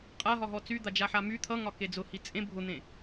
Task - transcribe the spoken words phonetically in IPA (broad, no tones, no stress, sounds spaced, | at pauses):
qʼ a ɦ ɒ ɦ ɔ t͡s y d̪ a d͡ʒ a ħ a m y t̪ʰ ʌ ŋ ɒ k e d͡z ʊ h i t͡sʼ ẽ bʱ ʊ n̪ ẽ